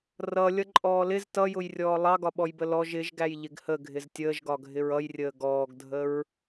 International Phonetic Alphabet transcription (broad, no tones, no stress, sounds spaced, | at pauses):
r ʌ lʲ ʌ ǃʼ ɔː l ɪ z t ʌ j ʊ j rʲ ɔː lˠ ɑ ɡ ɒ ɓ ɔ j b ə l ɔ ʒ ɪ ʒ ɡ æ j ʎ ɪ ɡ h ə ɡʱ ɪ z tʲ əː ʒ ɡ ɒ ɡʱ ɪ ɹ ʌ j rʲ əː ɡ ɔː ɡ dʱ ə ɹ